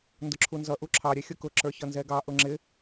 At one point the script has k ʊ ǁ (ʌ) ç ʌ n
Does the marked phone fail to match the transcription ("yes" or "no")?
yes